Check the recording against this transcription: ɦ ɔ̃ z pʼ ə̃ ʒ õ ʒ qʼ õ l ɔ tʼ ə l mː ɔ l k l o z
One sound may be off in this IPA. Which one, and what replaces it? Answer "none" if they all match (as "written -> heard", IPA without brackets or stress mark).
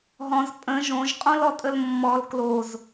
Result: none